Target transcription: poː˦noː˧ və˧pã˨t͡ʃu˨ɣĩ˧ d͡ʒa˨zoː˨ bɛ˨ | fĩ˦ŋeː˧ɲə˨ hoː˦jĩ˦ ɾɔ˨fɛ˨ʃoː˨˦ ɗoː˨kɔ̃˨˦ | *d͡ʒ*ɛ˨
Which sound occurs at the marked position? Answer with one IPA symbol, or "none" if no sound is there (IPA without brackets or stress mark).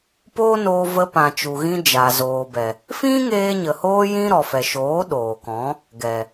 ɡ